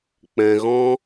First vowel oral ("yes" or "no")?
no